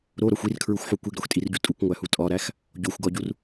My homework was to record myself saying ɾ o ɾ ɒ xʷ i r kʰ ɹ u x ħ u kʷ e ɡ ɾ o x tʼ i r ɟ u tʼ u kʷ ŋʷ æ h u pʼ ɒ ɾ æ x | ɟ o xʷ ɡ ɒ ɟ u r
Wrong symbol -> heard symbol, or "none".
pʼ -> tʼ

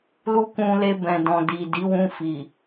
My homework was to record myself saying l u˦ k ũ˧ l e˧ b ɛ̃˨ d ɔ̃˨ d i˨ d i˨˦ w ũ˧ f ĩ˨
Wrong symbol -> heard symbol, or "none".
ĩ˨ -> i˨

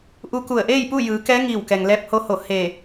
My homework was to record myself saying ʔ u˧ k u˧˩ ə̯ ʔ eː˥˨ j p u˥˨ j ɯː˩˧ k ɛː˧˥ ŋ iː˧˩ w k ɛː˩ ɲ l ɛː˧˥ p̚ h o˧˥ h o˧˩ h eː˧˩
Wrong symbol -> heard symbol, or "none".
ɲ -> ŋ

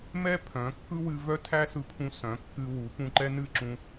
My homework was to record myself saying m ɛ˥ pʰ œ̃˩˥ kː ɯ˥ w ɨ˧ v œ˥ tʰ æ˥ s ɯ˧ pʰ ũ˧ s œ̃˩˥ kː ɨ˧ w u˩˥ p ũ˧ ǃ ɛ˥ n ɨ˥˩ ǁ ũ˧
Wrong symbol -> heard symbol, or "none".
none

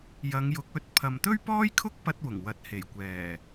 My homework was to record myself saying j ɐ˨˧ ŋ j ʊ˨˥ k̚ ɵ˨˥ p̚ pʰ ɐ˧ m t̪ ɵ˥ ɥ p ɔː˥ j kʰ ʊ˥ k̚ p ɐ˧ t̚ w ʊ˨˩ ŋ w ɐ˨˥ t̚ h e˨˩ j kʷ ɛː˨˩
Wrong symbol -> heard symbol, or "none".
p̚ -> t̚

